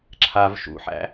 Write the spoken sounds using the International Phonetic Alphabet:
ǁʰav ʃṵħæ̰

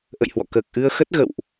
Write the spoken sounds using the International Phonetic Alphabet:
ʔə̰˧˨jhwɔ̰˧˨ kəː˨˩k̚ʔɨ˧ə̯ xə˦˥t̚ ɣə̰˧˨wʔ

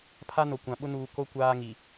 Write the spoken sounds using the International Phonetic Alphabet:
pʰa˦no˨kʷã˨ɓʊ˦ nuː˨ ko˦ kʷaː˦ŋi˨

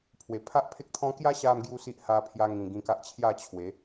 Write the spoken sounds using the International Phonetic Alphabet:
pʰwe˨˩pʰa˦ʔpʰe˦k̚t̪ʰɔ̃˦ kja˦ɕa˧m ɡju˦si˦ʔ ha˧pʰja˧ ŋĩ˨˩ɡĩ˧ka˦ʔ t͡ɕʰja˥˧ t͡ɕʰwe˨˦

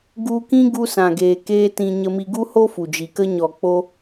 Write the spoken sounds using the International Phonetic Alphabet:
ɡu˧kĩ˦ ɡu˦sã˨ɡeː˨ keː˦tĩ˧ ɲə˧mi˧ ɡu˦ho˦ fu˨d͡ʒi˨kə˦ ɲɔ˨ k͡po˦

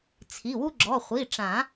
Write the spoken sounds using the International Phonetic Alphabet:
t͡sʰi˩˧˩wu˦ɡ͡ǁɔ˩˧˩ χʷi˩˧˩ʈ͡ʂã˨˩˦

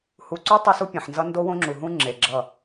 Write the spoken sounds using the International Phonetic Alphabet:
hu˨ǀu˦ tˤe˦su˦pʲẽ˨ħnzʌ˦ ndo˦wõ˦ŋ͡ǁu˨ɦũ˦ ŋ͡ǁe˨ɡ͡ǁʌ˦˨

